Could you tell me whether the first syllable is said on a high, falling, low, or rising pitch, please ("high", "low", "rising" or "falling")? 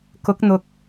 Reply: rising